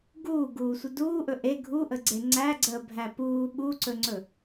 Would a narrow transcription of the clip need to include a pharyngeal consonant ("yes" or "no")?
no